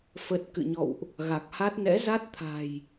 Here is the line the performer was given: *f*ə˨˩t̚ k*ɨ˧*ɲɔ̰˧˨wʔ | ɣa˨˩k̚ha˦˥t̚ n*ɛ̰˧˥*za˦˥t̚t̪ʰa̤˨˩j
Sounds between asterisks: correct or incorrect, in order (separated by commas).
correct, incorrect, correct